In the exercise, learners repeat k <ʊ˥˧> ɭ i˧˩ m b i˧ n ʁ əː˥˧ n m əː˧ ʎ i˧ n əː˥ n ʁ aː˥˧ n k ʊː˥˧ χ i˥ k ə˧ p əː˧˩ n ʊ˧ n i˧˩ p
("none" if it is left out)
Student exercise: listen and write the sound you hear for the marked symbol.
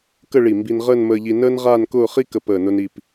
ə˥˧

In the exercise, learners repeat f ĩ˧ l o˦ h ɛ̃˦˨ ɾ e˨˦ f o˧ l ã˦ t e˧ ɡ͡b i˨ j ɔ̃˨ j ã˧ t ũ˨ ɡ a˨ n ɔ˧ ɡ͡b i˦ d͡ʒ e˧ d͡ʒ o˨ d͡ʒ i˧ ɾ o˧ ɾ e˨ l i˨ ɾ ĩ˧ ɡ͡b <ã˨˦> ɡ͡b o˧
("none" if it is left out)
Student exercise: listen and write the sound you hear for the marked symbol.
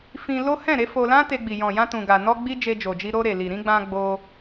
ã˧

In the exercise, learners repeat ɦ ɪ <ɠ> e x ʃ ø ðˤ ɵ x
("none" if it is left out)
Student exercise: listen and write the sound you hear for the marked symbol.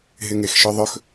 ŋ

